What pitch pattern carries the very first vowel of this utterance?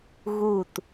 falling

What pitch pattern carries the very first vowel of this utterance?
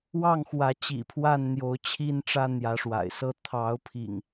falling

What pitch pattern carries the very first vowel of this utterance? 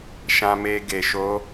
low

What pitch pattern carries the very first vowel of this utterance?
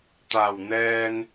low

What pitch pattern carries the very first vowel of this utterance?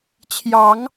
rising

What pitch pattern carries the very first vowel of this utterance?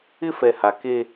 high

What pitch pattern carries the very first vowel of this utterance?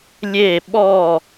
falling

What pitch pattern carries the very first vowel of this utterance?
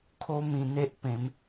high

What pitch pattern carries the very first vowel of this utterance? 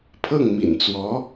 falling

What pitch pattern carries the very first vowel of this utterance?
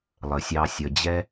low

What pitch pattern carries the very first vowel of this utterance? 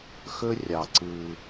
high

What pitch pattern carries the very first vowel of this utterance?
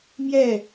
falling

